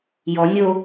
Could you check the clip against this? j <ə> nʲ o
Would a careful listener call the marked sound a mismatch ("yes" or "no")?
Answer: yes